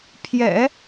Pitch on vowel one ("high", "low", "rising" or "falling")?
low